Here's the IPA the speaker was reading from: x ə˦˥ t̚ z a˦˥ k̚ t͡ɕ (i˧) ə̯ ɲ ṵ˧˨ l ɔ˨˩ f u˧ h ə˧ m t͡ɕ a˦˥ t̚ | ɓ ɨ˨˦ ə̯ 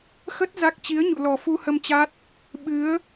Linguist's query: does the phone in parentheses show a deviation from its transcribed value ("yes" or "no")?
yes